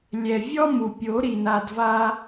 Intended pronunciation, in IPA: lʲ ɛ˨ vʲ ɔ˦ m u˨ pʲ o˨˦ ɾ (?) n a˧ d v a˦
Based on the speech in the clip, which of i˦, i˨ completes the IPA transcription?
i˨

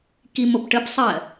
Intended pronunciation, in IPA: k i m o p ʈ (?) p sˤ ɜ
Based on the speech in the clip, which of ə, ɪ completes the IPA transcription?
ə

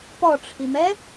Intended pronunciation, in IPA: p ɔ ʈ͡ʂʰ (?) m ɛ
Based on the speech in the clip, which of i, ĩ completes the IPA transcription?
i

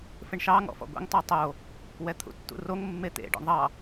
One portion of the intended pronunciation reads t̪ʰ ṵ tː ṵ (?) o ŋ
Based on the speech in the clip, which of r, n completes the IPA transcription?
r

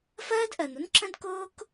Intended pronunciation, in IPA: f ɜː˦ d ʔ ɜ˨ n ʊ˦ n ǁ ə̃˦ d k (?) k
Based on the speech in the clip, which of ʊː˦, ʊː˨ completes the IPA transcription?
ʊː˦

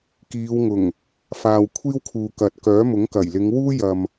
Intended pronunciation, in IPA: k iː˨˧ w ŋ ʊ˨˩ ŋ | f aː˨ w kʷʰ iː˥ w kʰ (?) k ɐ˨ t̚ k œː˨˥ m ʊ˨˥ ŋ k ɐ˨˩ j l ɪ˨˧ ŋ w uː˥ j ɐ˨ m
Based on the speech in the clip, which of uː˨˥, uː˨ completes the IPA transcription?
uː˨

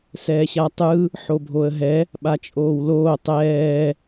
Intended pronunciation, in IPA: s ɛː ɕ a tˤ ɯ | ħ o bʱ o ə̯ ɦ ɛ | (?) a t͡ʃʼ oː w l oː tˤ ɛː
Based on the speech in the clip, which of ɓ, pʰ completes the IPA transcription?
ɓ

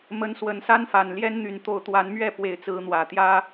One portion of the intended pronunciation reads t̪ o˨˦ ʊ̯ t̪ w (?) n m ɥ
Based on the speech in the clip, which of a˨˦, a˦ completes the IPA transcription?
a˨˦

